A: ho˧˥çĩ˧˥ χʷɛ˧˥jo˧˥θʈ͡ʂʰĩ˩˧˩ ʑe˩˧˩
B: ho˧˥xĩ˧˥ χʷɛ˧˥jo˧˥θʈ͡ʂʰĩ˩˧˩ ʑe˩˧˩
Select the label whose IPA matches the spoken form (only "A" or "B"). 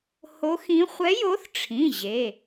B